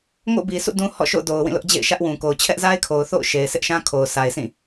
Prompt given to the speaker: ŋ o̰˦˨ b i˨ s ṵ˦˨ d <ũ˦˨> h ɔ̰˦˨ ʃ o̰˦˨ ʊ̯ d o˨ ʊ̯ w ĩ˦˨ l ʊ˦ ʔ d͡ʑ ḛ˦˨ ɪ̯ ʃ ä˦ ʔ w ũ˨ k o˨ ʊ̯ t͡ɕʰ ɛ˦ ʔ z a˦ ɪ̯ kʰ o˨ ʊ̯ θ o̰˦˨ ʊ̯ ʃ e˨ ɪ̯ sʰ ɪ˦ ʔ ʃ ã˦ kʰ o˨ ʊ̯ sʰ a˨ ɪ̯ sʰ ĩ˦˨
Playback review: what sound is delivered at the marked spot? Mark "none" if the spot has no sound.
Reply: ũ˦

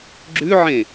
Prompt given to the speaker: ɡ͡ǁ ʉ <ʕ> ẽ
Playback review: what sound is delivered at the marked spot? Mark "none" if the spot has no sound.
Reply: ʕ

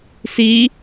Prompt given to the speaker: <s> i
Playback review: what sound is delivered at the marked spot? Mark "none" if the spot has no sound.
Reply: s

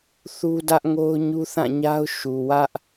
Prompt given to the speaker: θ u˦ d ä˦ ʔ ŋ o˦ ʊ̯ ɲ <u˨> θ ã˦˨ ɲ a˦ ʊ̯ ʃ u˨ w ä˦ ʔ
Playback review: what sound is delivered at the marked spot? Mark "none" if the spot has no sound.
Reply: u˦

